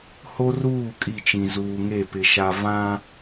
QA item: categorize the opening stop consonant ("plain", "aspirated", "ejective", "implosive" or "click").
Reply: ejective